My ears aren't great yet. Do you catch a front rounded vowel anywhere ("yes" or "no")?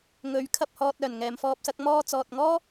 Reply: yes